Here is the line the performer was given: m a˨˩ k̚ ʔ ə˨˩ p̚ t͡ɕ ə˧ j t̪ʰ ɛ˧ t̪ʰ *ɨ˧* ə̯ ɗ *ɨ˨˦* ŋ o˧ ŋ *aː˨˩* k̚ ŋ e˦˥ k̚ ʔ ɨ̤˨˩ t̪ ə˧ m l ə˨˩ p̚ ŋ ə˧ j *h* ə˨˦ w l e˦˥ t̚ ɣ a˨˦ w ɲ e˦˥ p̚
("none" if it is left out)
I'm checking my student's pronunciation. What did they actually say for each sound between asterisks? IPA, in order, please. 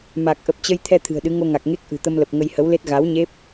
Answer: ɨ̤˨˩, ɨ˨˦, a˨˩, h

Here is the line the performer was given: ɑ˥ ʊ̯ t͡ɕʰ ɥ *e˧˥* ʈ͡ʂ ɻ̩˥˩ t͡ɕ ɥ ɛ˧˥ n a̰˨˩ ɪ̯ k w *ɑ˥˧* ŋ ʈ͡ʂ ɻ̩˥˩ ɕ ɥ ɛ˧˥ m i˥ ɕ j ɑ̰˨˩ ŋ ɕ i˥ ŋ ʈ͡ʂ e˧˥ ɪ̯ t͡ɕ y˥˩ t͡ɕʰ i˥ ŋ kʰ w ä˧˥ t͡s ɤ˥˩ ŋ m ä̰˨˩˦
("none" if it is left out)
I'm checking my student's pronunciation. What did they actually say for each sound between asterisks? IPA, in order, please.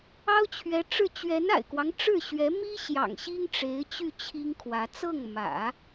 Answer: ɛ˧˥, ɑ˦

